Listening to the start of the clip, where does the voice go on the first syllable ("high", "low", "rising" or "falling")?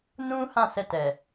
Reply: high